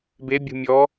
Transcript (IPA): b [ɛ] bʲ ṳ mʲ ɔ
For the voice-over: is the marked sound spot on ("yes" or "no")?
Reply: no